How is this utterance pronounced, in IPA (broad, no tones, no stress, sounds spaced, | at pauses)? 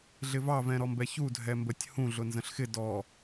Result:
ɮ ɪ v ɑ v ɛ̃ ɾ ɔ m b ɛ ç u dʱ ɛ m b ə tʲ h ũ ɮ ʊ n z ə̃ ɬ x ɪ d ɔ